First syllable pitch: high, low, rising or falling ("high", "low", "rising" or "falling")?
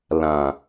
low